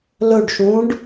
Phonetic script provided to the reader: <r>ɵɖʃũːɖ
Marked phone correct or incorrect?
incorrect